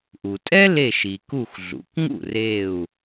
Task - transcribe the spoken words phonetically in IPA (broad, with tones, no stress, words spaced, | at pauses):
ʔu˩tʼɛ˥le˧˩ʃi˩ ku˧˩xɮṵ˩˧kŋṵ˥˩ re˧˩u̯